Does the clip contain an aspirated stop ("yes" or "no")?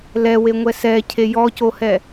yes